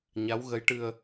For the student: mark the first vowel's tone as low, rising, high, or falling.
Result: rising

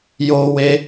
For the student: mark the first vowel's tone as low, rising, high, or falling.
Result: high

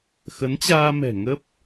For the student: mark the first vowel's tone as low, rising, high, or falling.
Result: rising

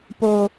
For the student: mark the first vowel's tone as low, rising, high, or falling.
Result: low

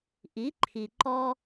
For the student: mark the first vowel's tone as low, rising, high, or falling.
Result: rising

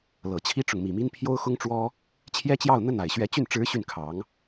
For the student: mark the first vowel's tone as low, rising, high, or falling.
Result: low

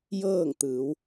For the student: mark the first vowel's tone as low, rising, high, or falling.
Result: falling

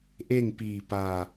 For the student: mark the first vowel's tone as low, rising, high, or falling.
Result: falling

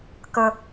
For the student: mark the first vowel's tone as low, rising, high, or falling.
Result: low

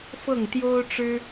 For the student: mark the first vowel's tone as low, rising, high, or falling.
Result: falling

